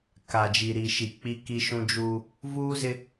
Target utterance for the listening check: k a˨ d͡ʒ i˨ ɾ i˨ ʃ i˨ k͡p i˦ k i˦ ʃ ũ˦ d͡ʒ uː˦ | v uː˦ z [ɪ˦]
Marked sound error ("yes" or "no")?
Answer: no